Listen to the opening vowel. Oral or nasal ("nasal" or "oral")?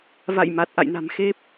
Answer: oral